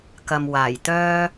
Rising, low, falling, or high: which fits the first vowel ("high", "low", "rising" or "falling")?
low